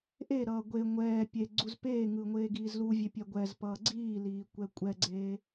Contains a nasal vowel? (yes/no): no